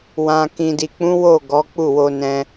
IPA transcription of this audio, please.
w ã˧ k ĩ˨ d i˨ k͡p ũ˨˦ w o˦˨ ɡ ɔ˨˦ k͡p u˦˨ w o˧ n ɛ̃˧

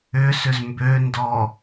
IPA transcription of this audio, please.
ʏ s ʏ z m b ø n d ɔ

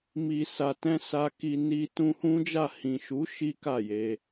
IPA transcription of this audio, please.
m i˨ s a˨ t ɛ̃˧ s a˧ k i˧ n i˧ t ũ˧ h ũ˦ d͡ʒ a˦˨ h ĩ˨ ʃ u˨˦ ʃ i˦ k a˦˨ j e˧

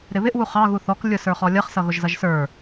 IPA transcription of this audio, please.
ɾ ɪ β ɪ ʔ w u χ ɑ ɣ u θ ɔ k lʲ ʊ s ə˞ χ ɔ lʲ ʌ χ s ʌ ɣ ʊ ʒ z ʌ ʒ s ə˞

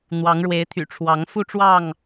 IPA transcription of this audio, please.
n̪ w ɑ˨˦ ŋ ɻ w e˨˦ ɪ̯ t̪ʰ y̰˨˩ ʈ͡ʂʰ w ɑ˨˦ ŋ f u˥˨ ʈ͡ʂ w ɑ˥˨ ŋ

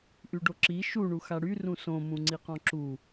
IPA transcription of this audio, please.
ʔ y ɖ o ǁ i ʃ u ɳ u x a ɽ y r ũ s õ m ũ ŋ͡ǀ i q ɔ̃ ǁ u

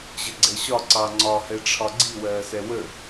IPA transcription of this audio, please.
ʑ ə ɡ͡ǀ ɛ ɕ ɒ ǀ ɑ ŋ͡ǀ ɒ h ɛ ʈ͡ʂʰ ɒ ɡ͡ǀ i w ɜː s ɛ w ə

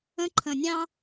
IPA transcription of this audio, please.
ə̃˦ ǃʰ ə̃˨ nʲ ɑ̃˦

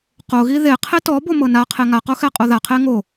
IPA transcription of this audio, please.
q o ɣ i ð e qʰ e t ɔ b o m ɤ n a qʰ e ŋ a q o x ɛ qʼ o ð a qʰ e ŋ o

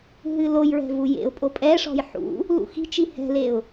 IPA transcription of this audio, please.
ɦ ɨ l o j ɹ ɛ̤ v u j ḛ ʊ̯ pʼ o pʼ ɛ ʂ ɔ̤ j ħ ṵ | l ṵ x i̤ t͡ʃ i h ɛ̤ l e ʊ̯

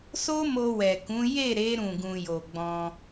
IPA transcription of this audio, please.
s o˦ m o˧ w ɛ˨ k ũ˨˦ j e˦˨ ɾ e˨˦ ɾ ũ˦˨ ɡ ũ˧ j o˨ ɡ͡b ɔ̃˧

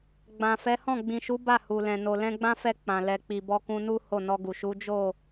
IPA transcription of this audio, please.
ɡ͡b ã˨ f ɛ˨˦ h ɔ̃˦˨ ɡ͡b ĩ˨ ʃ u˨˦ b a˦˨ h u˨ l ɛ̃˨ n o˨ l ɛ̃˧ ɡ͡b ã˦ f ɛ˧ k͡p ã˨ l ɛ˨ k͡p i˨ b ɔ˧ k ũ˧ n u˦ h o˦˨ n ɔ˧ ɡ u˨ ʃ u˨˦ d͡ʒ o˦˨

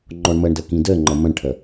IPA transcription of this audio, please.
ŋ͡ǃ ɔ ɳ m ɐ ɳ d ɐ k ĩ d ɜ ŋ͡ǃ ɐ m ɐ̃ ɳ ʈʰ ɐ

